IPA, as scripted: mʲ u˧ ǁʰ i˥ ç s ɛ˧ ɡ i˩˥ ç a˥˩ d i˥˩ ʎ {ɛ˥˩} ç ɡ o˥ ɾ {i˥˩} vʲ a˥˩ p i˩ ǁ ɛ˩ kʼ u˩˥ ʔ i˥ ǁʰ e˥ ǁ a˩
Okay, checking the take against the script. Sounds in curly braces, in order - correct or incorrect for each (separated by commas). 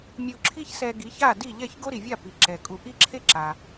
correct, incorrect